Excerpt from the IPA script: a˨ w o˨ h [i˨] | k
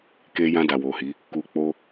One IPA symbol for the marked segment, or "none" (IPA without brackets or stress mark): i˨˦